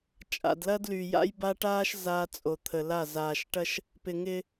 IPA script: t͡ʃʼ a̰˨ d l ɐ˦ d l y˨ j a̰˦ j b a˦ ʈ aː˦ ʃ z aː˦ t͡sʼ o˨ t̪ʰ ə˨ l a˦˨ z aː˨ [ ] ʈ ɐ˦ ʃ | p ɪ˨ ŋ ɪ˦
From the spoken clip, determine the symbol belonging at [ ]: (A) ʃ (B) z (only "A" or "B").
A